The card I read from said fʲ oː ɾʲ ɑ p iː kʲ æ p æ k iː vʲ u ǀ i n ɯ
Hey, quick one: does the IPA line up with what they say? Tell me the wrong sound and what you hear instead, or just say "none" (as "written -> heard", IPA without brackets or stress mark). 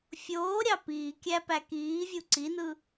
none